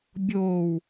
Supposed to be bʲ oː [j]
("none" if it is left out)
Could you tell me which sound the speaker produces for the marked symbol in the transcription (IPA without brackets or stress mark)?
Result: w